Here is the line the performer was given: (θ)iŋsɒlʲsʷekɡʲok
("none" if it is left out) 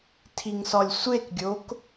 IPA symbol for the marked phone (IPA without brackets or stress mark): tʰ